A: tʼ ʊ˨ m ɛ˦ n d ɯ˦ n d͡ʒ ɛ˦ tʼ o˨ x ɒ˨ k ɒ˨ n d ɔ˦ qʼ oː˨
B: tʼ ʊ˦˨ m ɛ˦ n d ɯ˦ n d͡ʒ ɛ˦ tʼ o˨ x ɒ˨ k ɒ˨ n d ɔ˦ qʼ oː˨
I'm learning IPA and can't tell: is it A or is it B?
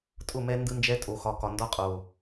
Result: B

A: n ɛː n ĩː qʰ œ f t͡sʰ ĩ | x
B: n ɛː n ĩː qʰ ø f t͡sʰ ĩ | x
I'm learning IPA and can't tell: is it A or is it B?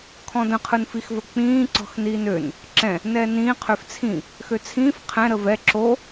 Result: B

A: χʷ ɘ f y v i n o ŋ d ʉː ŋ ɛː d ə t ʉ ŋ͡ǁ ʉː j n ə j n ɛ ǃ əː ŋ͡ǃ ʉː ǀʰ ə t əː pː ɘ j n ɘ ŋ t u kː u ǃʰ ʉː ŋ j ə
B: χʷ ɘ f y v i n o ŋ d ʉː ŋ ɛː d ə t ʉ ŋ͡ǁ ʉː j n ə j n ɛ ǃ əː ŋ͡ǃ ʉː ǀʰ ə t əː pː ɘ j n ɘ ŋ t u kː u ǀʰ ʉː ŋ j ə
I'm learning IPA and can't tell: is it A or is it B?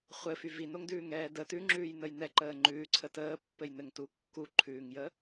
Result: A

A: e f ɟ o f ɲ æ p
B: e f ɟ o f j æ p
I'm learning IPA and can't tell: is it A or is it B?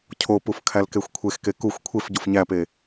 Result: A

